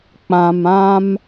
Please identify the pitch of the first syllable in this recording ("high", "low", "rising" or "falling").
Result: low